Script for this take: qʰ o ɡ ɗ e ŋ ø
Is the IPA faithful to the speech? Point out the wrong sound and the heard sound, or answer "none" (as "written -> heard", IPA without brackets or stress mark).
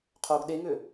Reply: none